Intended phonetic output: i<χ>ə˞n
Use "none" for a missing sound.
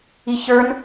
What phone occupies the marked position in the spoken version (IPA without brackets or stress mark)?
ç